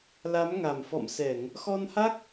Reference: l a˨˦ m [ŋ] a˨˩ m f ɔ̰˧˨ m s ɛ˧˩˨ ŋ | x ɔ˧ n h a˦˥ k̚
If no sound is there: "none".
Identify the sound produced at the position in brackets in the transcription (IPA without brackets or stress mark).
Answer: ŋ